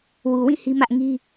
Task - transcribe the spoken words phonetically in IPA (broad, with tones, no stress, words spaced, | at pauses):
wu˨wĩ˦˨ hi˦mä˦ʔ ŋi˦